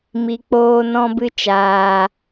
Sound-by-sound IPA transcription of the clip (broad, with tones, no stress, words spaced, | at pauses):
mi˨k͡poː˧ nɔ̃˦bɨ˦t͡ʃaː˧